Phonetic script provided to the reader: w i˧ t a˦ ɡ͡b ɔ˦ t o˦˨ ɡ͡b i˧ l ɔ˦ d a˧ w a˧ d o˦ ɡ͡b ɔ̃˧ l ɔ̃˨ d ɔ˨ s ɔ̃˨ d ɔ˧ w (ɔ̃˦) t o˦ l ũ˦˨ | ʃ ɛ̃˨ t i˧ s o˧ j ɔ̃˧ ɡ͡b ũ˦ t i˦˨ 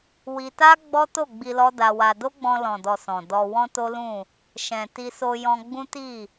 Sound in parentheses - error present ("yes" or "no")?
no